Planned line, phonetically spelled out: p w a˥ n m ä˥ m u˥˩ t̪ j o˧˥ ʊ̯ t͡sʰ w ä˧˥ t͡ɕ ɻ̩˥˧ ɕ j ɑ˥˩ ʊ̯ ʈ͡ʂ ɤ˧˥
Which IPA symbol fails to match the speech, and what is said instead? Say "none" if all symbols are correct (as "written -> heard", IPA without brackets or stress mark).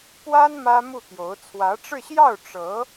t͡ɕ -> ʈ͡ʂ